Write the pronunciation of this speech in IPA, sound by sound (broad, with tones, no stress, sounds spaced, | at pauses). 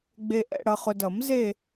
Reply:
ɡ͡b e˨ ʔ ɛ̰˨ ɽ ʌ˨ χ ʊ˨ d ʌ˨˩˦ m z e˦˨